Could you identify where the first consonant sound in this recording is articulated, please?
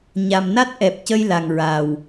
palatal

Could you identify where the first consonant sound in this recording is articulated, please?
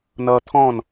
alveolar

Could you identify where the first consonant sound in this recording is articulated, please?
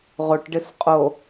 uvular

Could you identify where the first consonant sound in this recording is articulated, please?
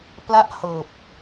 labial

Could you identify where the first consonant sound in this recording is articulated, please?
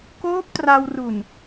velar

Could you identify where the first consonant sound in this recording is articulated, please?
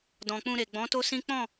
alveolar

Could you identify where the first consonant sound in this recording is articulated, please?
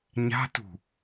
palatal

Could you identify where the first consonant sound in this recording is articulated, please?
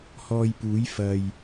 glottal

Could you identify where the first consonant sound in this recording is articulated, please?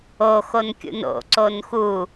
velar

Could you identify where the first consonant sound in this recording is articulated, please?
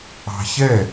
palatal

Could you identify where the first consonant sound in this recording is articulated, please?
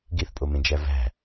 velar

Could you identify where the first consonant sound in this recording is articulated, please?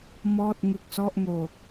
labial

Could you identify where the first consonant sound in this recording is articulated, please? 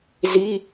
alveolar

